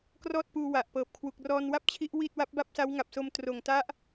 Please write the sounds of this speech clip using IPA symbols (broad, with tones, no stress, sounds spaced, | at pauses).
k r ɔː˥˩ t̚ p uː˧ w a˨˩ ʔ p ɤː˨˩ p̚ kʰ w u˨˩ k̚ r ɔː˧ n w a˥˩ p̚ t͡ɕʰ i˦˥ ʔ w i˥˩ t̚ w a˦˥ p̚ b a˥˩ p̚ s a˦˥ w ŋ a˨˩ p̚ s o˧ m t r oː˨˩ ŋ t a˦˥ ʔ